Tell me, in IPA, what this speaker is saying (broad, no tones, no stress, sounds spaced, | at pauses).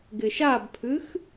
ɡ ɪ ʃ a b pʰ ɨ x